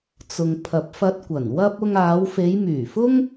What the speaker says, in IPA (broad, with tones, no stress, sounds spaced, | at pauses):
t͡s ʊ˨ ŋ pʰ ɐ˨ p̚ f ɐ˧ t̚ kʷ ɐ˨˩ n w ɐ˧ p̚ ʊ˧ ŋ aː˨˧ w f e˨˧ j m yː˨˩ f ʊ˥ ŋ